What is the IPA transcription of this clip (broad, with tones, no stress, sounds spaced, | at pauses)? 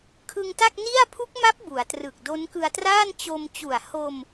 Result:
kʰ ɯ˧ ŋ t a˥˩ k̚ n i˥˩ a̯ pʰ u˦˥ k̚ m a˦˥ p̚ b u˩˦ a̯ t r ɯ˨˩ k̚ d o˦˥ n k ɯ˧ a̯ t r aː˥˩ n t͡ɕ o˧ m t͡ɕ u˨˩ a̯ h o˧ m